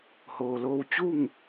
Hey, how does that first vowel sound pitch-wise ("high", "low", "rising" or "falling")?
low